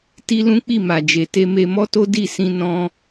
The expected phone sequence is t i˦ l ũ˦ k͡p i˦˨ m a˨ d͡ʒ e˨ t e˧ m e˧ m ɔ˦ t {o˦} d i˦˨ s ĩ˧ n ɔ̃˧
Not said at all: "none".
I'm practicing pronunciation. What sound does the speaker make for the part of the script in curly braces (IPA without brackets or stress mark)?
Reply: o˦